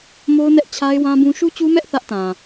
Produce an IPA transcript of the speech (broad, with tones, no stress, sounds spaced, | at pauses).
m o˦ ʊ̯ n ɛ˦ ʔ t͡ɕʰ a˦ ɪ̯ w ã˦ b ũ˦ ʃ u˦ t͡ɕ u˦ m ɛ˦ ʔ θ ä˦ ʔ t ã˨